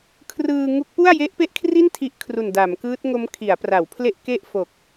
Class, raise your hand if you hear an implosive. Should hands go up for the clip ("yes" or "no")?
no